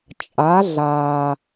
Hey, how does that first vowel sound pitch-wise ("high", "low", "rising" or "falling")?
rising